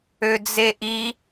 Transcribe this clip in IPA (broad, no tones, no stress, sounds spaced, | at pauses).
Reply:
ø d͡z e ʔ i